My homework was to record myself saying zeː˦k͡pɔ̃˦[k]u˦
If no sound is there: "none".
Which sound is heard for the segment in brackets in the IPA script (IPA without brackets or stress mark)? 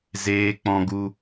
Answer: ɡ